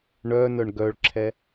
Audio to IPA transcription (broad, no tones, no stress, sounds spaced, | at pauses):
ɳ œ n œ ɳ ɡ œ ɭ ǁʰ ɛ